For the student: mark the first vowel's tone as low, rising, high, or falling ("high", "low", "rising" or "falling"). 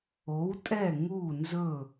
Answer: rising